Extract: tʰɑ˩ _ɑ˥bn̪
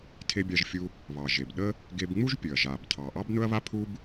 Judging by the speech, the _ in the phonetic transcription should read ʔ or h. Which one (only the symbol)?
ʔ